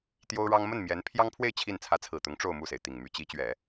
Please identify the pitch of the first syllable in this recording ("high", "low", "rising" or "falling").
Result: high